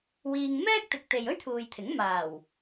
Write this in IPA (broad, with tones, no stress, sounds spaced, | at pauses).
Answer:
w iː˧ ŋ m ɛː˥ k̚ t̪ ɪ˨ k̚ t̪ e˨ j ɵ˥ ɥ t̪ʰ uː˨ j t̪ʰ ɪ˨˥ ŋ m aː˨˩ w